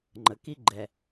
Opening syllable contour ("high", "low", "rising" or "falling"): low